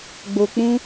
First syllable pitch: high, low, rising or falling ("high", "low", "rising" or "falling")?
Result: low